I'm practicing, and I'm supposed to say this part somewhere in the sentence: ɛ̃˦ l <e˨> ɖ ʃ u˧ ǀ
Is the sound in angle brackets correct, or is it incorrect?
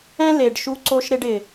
correct